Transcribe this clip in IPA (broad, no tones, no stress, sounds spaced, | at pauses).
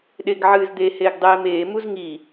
ɗ e ɡ ʕ ɨː z d̪ e h eː ɡ dˤ eː m eː m u z ŋ i